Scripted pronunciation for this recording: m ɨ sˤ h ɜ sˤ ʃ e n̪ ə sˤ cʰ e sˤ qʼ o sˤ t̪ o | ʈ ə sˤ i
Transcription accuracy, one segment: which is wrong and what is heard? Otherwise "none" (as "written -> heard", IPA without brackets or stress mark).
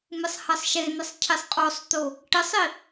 none